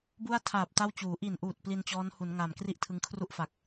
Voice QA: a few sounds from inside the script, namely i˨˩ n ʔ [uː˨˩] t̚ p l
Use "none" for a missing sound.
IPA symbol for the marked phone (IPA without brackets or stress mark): uː˨˩